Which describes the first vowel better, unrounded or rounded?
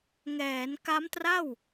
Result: unrounded